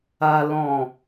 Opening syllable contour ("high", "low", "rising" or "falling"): low